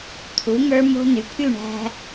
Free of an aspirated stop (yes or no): no